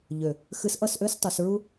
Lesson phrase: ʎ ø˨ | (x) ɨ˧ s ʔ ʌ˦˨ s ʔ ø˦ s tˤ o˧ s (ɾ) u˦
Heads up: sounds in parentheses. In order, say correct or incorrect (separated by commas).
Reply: correct, incorrect